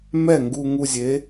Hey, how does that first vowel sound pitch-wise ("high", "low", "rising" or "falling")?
falling